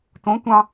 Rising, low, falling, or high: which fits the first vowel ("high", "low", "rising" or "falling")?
rising